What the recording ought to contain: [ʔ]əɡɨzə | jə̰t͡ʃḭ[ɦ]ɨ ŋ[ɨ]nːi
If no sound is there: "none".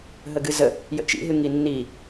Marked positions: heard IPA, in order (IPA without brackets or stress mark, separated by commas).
ɦ, ɦ, i